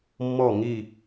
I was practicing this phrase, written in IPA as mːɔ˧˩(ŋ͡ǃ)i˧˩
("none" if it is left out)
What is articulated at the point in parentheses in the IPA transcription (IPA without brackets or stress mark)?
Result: ŋ